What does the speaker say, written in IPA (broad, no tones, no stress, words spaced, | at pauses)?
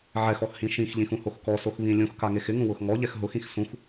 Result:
ʕɛxɔxhĩ ʃĩxʎĩxũhox kɔsoxβĩ lʲũxkaŋex ɪŋũwʊx ŋɔʎɛx ɦʊxĩx sũx